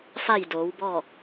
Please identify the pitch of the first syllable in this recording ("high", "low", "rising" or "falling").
falling